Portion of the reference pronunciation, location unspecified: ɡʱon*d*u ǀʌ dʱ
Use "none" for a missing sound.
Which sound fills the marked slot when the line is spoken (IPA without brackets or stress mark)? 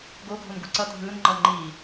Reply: ɡ